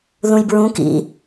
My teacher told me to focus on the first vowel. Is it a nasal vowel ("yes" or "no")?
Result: yes